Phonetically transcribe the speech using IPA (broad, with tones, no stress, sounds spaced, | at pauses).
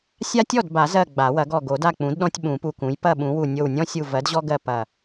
sʲ a˦ tʲ ɔ˥˩ d b a˨˩˦ z ɜ˧˩ ɡ͡b a˨˩˦ w ɐ˩˥ ɡ ɔ˧˩ ɡ o˨˩˦ d a˥˩ k͡p ũ˩˥ d ɗ ɔ̃˦ tʲ ɓ ũ˨˩˦ p u˧˩ k ũ˩˥ j p ɐ˥˩ ɓ ũ˩˥ w u˧˩ nʲ o˧˩ w nʲ ɔ̃˦ sʲ u˧˩ v ɜ˩˥ d ʑ ɔ˦ ɡ ɜ˧˩ p ɐ˧˩